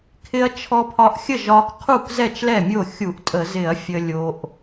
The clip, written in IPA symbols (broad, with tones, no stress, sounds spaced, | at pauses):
kʰ ɪ˧ ɐ̯ t͡ʃʰ ɔ˧ pʰ ɒ˧ ʔ xʲ ə˥˩ ʒ ɒ˧ k qʰ u˥˩ k z ɛ˥˩ t͡ʃ l ɛ˥˩ mʲ o˥˩ xʲ u˧˩˧ ʔ tʼ ə˧˩˧ z ɪ˧˩˧ ɐ̯ fʲ ə˧ lʲ o˧ ʔ